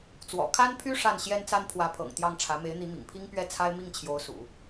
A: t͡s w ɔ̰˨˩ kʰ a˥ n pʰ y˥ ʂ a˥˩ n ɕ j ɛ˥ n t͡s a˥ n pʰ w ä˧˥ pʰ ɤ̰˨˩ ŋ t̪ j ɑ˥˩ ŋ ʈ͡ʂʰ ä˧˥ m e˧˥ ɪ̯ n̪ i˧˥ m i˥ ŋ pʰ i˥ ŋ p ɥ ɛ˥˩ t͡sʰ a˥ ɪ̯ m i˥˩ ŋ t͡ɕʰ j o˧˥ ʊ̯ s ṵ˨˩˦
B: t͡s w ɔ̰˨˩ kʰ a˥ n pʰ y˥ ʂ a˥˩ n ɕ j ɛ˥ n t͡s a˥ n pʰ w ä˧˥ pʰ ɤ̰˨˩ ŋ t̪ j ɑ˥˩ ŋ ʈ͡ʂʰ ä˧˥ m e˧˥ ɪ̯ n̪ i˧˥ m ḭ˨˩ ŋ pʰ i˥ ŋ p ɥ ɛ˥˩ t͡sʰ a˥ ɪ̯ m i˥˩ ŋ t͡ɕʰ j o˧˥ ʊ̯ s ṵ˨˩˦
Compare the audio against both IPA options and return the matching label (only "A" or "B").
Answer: B